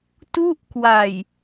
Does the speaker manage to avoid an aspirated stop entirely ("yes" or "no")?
yes